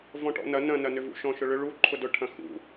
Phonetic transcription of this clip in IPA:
v ɔ̃ ʈ ɔ̰ n ɐ n ɐ̃ n ɐ n ʏ v ṵ ʃ ɔ̃ ʃ ʊ ɭ ʏ ɭ u ǃʰ ʊ d ʊ ʈʰ ɐ̃ x ṵ

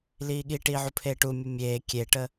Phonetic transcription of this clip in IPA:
l iː ɠ i ʈ iː ʕ u pʰ eː ʈ u mʲ ə mʲ eː kʲ e ʈ ə

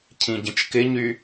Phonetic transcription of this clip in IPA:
cʰ ĩ ɟ ə̃ t͡ʃ k ɪ ɲ y

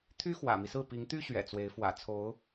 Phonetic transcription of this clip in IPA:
t̪ʰ y˥ x w ä̰˨˩ m i˦ s ɹ̩˥˩ p i˧˥ ŋ t̪ y˥ ɕ ɥ ɛ̰˨˩ t͡s w e˧˥ ɪ̯ f w ä̰˨˩ t͡sʰ o˧˥ ʊ̯

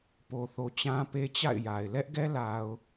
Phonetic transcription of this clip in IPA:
p o˨ θ o˨ t͡ɕ ã˦ p e˦ t͡ɕ a̰˦˨ ɪ̯ j a˨ ɪ̯ l ɛ˦ ʔ ɡ ɛ˦ l a˨ ʊ̯

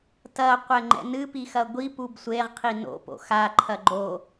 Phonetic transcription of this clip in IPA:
t ɐ qʷ ɛ ŋ͡ǃ ɛ̰ n ɨ p i x ɐ ɡʷ i p u b sʷ e ʁ qʰ i n o̰ p o̰ x a ǃʰ ɐ ɡ͡ǃ o

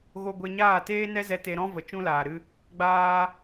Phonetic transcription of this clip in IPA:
ɣ o˧ ɡʷ e˧ ɲ aː˦˨ t eː˦ n ɛ˦ z ɛ˧ t e˧ ɾ ɔ̃˦ v ə˨ t͡ʃ ũ˦ l aː˨ ɾ ɨ˦ | ɡ͡b aː˦

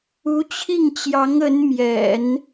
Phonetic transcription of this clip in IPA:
u˧˥ t͡ɕʰ i˥˩ ŋ t͡ɕ j ɑ˧˥ ŋ ə˧˥ n m j ɛ̰˨˩˦ n

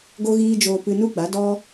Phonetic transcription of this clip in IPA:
ɡ o˦ ɣ iː˦ d͡ʒ oː˧ p ɨ˧ n u˦ ɡ͡b a˨˦ d ɔ˧

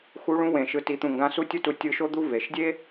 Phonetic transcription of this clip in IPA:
x u˧˥ ɭ ũ˧˥ w ẽ˩ ʃ ɯ˩˧ t i˩˧ t̪ ũ˩ ŋ ɡ ã˧ s u˥ tʲ u˥ t u˧ tʲ ɯ˧ ʃ o˥ d̪ u˥ v e˩ ʃ dʲ e˥

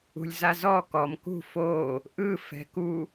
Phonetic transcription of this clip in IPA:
ṳ lʲ z a z ɔ k ɔ m k ṳ f o | ʔ ɯ f ɛ̤ k u

